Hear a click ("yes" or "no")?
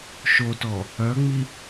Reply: no